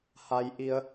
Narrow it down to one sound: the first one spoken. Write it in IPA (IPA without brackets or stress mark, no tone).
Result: h